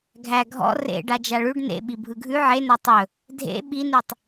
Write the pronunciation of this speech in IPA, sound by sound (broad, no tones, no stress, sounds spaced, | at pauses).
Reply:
ɡʱ æ ɡʱ ɔ̰ r ḛ ɖ a d͡ʒ a ɭ ʉ ɖ n ḛ ɓ i bʱ ɯ ɡʱ ʉ ʕ e n a tˤ ɵ | dʱ ḛ ɓ i n ʉ tˤ